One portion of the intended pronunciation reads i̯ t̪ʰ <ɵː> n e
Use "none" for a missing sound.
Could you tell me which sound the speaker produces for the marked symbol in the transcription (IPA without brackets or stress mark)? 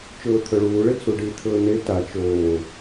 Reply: ɵː